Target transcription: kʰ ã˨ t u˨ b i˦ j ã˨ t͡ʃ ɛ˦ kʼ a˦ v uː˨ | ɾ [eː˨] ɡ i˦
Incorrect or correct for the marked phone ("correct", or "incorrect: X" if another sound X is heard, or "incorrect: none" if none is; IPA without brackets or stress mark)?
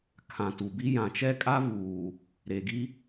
incorrect: e˨